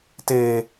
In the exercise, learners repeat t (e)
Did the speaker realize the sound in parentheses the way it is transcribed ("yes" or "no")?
yes